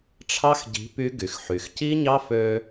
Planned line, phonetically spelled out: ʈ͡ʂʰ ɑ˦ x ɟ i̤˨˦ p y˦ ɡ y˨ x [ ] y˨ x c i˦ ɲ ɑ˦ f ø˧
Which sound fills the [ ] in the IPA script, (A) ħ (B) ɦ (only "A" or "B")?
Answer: A